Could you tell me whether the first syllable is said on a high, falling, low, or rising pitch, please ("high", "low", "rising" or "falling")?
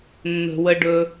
low